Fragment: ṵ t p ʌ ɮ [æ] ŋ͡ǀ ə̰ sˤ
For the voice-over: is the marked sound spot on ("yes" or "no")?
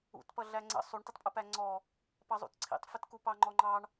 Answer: yes